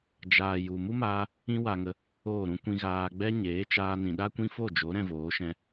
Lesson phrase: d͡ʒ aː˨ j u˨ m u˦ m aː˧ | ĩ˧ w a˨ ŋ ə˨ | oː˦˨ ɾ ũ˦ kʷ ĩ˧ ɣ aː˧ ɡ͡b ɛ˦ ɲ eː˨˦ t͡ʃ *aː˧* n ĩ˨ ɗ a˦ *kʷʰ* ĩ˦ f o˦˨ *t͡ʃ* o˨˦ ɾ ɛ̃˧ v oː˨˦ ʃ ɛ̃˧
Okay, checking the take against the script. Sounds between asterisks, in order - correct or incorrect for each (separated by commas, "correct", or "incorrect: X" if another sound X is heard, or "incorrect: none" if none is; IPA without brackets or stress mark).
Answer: correct, incorrect: kʷ, incorrect: d͡ʒ